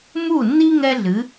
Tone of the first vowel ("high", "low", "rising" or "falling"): falling